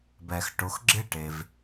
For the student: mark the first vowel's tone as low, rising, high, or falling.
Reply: low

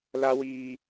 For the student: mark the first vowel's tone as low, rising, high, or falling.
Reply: high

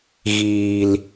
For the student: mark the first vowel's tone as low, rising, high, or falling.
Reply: low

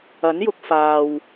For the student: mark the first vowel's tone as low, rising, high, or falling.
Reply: rising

